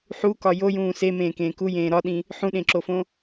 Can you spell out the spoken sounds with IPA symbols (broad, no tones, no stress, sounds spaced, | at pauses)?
ħ u k ɒ j o j ũː s e m ẽː k ẽː k u j ẽː ɾ ɒ ɗ ĩ | ħ ũ ɗ ẽ ǁ o f õ